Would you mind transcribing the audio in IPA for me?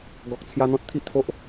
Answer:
ɡɔ˨k̚t͡sʰja˧n̪ɔ̃˦t̚ t̪ʰi˦ʔt̪ʰo˦ʔ

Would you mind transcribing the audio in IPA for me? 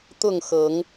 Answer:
t̪ʊ˥˨ŋxɤ˨˦ŋ

